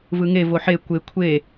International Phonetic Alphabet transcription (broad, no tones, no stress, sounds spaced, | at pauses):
v ɯ ŋ e v o ħ e kʷ e kʷʰ e